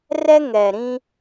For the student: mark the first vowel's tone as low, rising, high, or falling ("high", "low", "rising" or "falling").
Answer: high